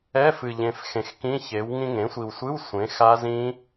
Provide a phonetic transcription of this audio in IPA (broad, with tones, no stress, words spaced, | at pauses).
ɛ˧˥˧fɨ˨˩ʎẽ˨˩f xẽ˨˩xkĩ˧˥˧ çe˩˥w ŋĩ˧ŋẽ˩˥sʷi˨˩wsʷɨ˧˥˧w sʷẽ˩˥xa˦˥ zĩ˦˥